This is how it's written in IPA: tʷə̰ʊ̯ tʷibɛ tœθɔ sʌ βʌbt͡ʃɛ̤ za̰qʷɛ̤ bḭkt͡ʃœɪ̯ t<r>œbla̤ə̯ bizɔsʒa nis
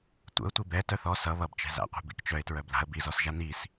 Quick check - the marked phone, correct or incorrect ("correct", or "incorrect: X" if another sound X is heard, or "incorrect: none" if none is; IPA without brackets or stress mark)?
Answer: incorrect: ɹ